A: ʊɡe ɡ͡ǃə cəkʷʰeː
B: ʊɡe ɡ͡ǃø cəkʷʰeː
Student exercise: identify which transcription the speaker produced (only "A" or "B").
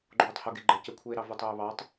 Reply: A